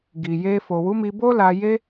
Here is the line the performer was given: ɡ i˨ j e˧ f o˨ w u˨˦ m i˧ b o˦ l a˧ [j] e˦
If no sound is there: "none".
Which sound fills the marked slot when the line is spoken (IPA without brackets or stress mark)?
j